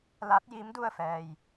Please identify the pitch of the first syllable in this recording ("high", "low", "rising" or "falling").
rising